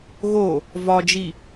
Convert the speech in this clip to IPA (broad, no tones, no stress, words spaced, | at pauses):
ɣo | vɒd͡ʒi